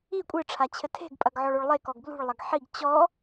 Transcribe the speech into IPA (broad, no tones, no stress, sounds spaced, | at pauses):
i kʷʼ ɨ ʈ͡ʂʰ a t͡ɕʰ ɘ tʰ e̤ ɡ pʼ ɐ ɡ ʕ ɔ ɭ o ɭ lˠ e k ɔ ɡ b l ṳ ɭ lˠ ɐ ɡ ħ i ɡ t͡ɕ ɔ